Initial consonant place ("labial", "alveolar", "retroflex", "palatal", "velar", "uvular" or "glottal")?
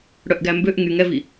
retroflex